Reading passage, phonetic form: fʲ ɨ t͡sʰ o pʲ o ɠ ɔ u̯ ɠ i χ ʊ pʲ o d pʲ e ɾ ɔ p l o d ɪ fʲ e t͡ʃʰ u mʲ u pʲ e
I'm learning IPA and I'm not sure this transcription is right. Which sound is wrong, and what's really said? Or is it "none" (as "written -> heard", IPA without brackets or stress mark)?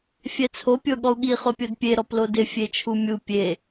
ɨ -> ɛ